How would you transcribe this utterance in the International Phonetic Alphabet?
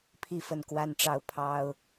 pʰi˥˨fə˥˨n kwa˦nʈ͡ʂɑ˦ʊ̯ pʰɑ˦ʊ̯

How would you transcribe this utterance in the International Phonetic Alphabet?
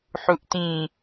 ħuʔtĩ

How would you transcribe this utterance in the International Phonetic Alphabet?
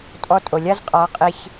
tʼɔ˦tʼo˨ lʲa˦z qʼa˨˦ qʼi˦ç

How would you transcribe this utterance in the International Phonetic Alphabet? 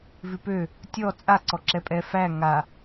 vʉpø | tʲɔ t͡sʼa ǀɔǁɛpʼɛ fæ ŋa

